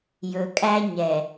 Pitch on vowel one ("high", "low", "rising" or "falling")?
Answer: low